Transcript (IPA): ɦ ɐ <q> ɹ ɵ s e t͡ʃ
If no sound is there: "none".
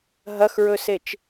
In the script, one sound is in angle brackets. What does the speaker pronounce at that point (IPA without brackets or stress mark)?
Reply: x